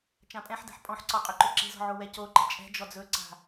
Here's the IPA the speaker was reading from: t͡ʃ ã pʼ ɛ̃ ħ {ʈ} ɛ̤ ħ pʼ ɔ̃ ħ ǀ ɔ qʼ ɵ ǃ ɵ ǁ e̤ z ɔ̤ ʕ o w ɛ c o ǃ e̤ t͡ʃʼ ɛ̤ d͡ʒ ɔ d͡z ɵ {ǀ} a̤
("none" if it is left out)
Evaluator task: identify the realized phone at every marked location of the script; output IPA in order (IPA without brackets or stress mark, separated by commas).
d, ǀ